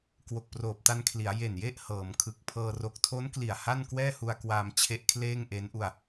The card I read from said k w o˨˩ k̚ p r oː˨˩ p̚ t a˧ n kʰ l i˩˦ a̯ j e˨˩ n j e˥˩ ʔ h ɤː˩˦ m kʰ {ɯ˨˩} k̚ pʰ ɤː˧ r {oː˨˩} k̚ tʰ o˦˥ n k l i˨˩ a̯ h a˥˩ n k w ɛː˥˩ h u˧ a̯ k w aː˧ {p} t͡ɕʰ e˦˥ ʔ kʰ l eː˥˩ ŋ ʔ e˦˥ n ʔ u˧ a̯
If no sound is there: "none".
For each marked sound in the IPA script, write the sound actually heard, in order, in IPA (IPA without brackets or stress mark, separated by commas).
ɯ˨˩, o˨˩, m